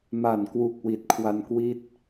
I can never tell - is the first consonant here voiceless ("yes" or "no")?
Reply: no